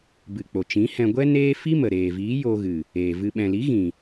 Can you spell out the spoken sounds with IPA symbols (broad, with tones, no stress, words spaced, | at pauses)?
bɨ˨k͡po˨t͡ʃĩ˨˦hɛ̃˧ ɡʷɛ˦neː˦ fi˦mə˨ ɾeː˨viː˨˦ jo˧ɣɨ˨ | eː˨vɨ˧ ɓɛ̃˨li˨˦ɣĩ˨